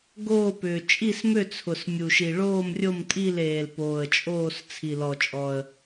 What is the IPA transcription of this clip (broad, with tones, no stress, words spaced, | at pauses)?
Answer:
ɡoː˦˨pʏː˩ t͡ʃʼi˦˨smø˦˨t͡sʰʊ˩s mʲu˩ʃi˩ ɭoː˦˨mrʲo˦˨mtʼi˦˨l eː˩lpoː˩ə̯t͡ʃʼoː˦˨s t͡sʰi˩lɔ˩t͡ʃʼɔ˩ə̯